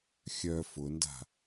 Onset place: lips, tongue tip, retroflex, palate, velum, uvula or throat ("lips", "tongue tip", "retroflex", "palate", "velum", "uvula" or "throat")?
velum